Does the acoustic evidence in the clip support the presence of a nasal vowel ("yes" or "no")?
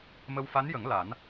no